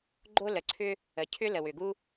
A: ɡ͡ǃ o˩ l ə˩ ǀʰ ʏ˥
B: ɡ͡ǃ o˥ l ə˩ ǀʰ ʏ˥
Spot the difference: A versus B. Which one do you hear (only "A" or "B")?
B